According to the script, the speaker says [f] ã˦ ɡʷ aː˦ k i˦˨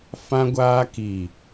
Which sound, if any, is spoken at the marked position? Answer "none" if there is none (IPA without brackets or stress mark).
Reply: f